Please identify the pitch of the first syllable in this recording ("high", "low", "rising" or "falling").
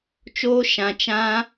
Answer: high